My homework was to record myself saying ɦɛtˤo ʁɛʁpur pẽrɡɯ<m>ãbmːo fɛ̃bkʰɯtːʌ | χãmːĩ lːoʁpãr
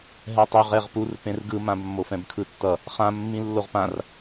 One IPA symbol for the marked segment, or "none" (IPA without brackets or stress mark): m